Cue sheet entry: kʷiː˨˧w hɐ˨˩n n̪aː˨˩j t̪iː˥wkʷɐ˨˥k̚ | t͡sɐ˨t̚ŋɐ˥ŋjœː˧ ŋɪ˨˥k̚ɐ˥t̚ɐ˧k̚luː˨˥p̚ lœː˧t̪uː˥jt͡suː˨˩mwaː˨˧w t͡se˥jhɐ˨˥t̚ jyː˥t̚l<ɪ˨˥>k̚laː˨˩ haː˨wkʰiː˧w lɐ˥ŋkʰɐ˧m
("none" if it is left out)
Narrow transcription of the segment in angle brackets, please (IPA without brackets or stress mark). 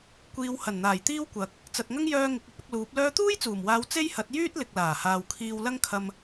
ɪ˨